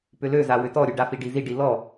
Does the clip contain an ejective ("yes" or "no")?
no